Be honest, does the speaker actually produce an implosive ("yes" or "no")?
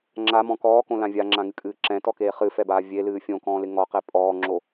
no